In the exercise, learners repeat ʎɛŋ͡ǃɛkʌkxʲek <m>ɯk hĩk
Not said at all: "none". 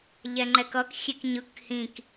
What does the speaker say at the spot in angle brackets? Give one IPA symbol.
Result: ɲ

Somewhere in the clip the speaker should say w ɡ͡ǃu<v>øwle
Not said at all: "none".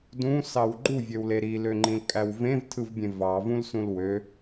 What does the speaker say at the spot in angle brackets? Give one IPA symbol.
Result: vʲ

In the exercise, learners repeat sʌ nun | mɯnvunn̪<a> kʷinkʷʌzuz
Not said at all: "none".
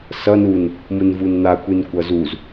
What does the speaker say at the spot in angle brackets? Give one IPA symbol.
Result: a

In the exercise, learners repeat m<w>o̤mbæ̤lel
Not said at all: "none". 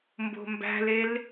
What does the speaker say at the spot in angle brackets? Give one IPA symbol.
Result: b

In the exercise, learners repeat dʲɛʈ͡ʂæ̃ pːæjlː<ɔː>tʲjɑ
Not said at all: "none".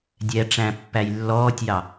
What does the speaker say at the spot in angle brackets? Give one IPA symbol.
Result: ɔː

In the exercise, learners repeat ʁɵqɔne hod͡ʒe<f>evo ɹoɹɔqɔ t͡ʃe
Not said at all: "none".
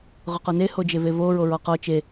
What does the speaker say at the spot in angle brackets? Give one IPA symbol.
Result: v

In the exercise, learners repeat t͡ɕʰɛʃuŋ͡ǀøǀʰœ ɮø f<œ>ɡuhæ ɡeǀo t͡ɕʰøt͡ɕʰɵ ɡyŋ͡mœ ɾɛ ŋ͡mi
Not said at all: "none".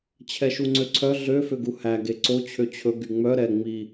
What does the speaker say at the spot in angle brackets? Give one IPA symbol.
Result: ø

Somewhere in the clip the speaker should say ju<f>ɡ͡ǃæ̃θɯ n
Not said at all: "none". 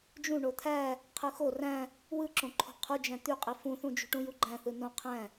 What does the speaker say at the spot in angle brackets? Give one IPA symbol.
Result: none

